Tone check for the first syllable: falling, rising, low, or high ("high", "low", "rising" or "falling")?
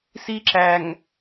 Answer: high